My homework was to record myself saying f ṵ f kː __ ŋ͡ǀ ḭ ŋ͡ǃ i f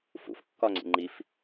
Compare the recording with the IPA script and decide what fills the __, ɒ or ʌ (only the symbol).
ɒ